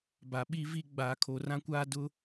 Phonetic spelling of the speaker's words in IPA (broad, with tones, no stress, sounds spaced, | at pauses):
b a˨ ɓ i˦ v i˦ ɡ͡b aː˨ kʰ o˨ r ã˦ kʷ aː˦ d ʊ˦